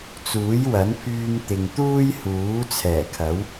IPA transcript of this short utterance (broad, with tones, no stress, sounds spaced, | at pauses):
t͡s uː˨˥ j w ɐ˨˥ n pʰ yː˧ m t̪ ɪ˨ ŋ t̪ uː˥ j h uː˨˥ t͡sʰ ɛː˨˩ kʰ ɐ˨˥ w